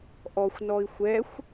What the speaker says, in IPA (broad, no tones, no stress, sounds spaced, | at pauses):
ʔ ɔ xʷ n ɔ i̯ xʷ ɛ xʷ